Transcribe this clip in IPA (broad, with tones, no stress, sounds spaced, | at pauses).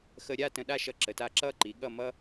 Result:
x ə˧ ɾʲ a˥˧ t ə̃˧ ɗ a˥˧ ʃ ʌ˧ ǁ ə˩˧ t a˧ ǁ ʌ˥˧ ǃ i˩˧ ɠ ʌ˥˧ m ʌ˥